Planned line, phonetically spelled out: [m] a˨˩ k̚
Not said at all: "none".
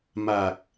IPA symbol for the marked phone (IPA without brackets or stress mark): m